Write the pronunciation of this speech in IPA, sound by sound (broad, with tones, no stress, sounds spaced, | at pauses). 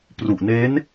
p r u˨˩ ʔ n e˦˥ n